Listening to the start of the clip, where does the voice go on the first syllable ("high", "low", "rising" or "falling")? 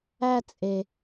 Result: high